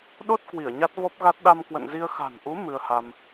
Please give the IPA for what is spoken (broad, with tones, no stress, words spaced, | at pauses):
ɗo˦˥t̚ kwi˧˩ə̯ɲa˦˥t̚vɔ˦˥p̚ɣa˦˥t̚ ɗa˧mkwə̰˧˨nzi˧ə̯ xa̤˨˩nʔu˨˦ mɨ˧ə̯ha˧m